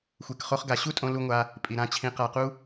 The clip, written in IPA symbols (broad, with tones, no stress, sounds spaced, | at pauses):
xʷ e˧ k χ o˦ χ ɡ a˧ ɕ u˦ tʼ õ˧ l u˧ ŋʷ a˧ | pʼ i˨ ɾ ã˧ t͡ɕʰ ĩ˧ q a˧ q u˦